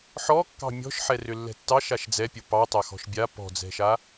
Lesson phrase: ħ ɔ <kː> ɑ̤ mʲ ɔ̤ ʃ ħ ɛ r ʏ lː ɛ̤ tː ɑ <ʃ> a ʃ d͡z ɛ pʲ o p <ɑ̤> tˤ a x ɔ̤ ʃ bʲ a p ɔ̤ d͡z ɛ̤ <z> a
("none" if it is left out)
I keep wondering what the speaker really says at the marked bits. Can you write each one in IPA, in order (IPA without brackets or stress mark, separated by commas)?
kː, ʃ, ɑ, ʃ